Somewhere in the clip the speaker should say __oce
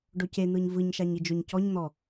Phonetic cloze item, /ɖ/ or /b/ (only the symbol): ɖ